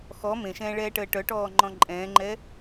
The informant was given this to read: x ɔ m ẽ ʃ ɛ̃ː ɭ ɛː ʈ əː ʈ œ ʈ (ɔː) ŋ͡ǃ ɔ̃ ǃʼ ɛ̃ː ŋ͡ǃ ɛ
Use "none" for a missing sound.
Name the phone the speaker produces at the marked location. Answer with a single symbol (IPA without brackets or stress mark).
ɔː